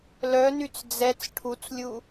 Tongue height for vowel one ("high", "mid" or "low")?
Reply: mid